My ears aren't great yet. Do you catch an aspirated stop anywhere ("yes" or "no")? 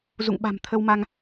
yes